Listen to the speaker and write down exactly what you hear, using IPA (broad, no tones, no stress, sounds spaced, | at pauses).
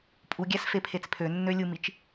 pʼ u ɡʲ æ s f e pʰ e t͡s pʰ ø nː ø lʲ u m i t͡ʃ